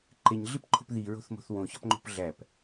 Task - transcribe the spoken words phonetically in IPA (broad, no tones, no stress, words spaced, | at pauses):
ǃeɲɮipǃʰo̤p ðiɹo̤θmo̤θ wõçɒpŋ͡ǃo̤p ɮæp